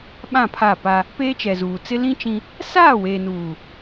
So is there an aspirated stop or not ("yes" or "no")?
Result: yes